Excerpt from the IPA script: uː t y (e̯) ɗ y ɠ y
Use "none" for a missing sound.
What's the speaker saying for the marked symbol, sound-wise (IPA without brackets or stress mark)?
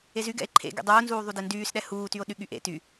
o̯